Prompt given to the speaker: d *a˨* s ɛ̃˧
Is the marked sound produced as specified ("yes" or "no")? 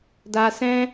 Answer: yes